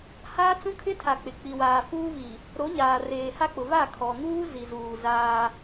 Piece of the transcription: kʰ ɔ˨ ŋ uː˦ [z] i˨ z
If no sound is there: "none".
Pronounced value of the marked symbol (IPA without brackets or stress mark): z